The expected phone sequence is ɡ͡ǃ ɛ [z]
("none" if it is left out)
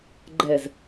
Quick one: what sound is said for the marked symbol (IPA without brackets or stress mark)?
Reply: z